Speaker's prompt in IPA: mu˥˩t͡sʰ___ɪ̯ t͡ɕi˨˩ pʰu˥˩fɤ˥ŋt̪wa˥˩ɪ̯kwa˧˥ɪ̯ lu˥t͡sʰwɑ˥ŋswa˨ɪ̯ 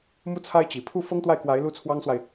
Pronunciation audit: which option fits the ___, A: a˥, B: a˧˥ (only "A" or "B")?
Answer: A